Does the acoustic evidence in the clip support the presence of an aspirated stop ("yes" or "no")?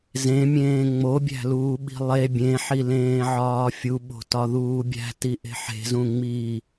no